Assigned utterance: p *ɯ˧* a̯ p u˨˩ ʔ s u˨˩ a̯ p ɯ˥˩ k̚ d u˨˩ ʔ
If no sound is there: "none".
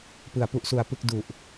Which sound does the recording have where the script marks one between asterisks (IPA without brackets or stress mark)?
ɯ˩˦